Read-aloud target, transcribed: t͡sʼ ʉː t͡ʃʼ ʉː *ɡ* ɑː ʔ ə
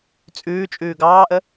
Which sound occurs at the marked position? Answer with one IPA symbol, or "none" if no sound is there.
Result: ɡ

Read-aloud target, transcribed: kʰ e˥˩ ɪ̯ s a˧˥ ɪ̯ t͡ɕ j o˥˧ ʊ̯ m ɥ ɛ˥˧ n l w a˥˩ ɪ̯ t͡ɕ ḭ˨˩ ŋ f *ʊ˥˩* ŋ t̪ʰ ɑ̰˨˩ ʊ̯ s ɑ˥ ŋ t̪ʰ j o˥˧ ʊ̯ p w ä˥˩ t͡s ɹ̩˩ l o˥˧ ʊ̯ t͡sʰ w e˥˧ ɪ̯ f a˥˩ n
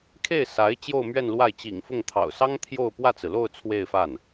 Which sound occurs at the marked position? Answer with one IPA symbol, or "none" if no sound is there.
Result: ʊ˥˩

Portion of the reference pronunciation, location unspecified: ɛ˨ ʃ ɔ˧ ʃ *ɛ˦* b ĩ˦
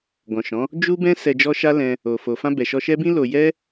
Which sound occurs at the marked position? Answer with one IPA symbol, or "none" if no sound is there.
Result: ɛ˦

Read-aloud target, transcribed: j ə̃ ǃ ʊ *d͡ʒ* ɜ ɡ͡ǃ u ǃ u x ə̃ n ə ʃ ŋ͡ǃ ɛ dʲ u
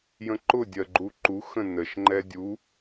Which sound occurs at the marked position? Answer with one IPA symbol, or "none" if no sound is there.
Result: dʲ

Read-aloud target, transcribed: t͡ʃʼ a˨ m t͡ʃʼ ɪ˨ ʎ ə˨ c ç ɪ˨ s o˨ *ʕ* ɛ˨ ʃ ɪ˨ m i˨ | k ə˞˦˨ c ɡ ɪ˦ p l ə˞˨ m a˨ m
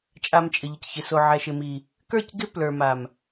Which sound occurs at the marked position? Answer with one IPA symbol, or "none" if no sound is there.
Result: ʕ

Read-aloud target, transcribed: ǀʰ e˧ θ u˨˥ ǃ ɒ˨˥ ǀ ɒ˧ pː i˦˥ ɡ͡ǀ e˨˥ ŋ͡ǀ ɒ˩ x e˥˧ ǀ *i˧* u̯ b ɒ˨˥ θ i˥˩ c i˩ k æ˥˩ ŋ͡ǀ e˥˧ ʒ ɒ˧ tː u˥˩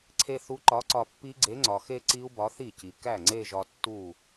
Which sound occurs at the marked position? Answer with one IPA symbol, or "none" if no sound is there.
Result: i˦˥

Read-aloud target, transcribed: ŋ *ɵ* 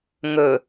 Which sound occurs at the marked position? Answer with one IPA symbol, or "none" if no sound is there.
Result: ɵ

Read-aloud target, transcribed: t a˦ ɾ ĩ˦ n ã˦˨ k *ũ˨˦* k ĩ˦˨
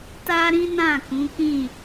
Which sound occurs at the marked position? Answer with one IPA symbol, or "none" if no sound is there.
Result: ũ˨˦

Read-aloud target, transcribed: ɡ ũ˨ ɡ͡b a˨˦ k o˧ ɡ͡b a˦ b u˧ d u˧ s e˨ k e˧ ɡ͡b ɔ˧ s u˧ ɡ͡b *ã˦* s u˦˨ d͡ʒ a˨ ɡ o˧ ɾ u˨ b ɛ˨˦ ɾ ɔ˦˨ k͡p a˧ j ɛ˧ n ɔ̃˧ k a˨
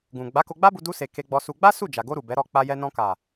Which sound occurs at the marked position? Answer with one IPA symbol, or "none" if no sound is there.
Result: a˦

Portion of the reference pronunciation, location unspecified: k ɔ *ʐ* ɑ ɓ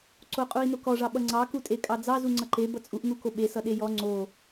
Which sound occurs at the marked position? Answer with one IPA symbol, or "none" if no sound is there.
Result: ʐ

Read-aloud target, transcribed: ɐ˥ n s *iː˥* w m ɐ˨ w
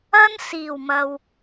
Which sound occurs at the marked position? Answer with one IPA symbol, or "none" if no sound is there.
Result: iː˨˩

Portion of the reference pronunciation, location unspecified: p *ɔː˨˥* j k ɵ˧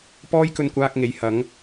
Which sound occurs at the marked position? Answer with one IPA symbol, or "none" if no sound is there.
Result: ɔː˥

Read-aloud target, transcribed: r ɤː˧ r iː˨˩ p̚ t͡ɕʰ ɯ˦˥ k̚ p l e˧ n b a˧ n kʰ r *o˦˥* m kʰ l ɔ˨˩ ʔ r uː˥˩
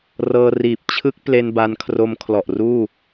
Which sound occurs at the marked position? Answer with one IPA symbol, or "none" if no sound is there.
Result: o˦˥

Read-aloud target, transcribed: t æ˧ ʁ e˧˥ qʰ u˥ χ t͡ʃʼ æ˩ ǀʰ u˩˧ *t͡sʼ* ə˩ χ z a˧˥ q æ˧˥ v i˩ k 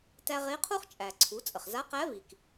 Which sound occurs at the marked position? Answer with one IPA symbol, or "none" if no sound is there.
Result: t͡sʼ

